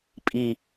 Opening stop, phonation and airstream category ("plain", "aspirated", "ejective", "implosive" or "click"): ejective